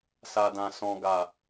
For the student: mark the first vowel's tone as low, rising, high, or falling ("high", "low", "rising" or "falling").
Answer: low